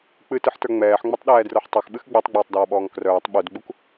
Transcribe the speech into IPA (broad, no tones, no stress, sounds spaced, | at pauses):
k͡p ɨ t ɨ ħ t ə˞ ŋ͡m ɛː ħ ŋ͡m o tˤ ɗ ɛː d r ə˞ ħ tˤ œ x ɓ ɨ x ɡ͡b ɛ tˤ ɡ͡b oː tˤ d ɔː ɓ ɔː ŋ k r œː tˤ ɓ u d ɡ͡b u k